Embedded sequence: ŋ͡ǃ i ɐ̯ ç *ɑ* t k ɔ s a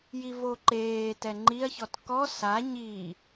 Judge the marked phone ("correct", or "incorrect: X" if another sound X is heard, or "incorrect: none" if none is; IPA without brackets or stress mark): incorrect: ɔ